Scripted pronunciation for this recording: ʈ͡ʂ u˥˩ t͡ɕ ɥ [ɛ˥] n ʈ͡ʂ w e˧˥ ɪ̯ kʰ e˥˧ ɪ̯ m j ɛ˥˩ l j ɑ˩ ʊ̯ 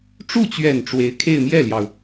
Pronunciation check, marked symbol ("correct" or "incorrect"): incorrect